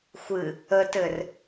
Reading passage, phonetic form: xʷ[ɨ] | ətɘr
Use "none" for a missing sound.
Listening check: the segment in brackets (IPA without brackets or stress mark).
ɨ